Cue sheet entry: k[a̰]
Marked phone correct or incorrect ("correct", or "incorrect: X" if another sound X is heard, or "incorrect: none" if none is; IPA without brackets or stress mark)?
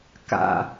correct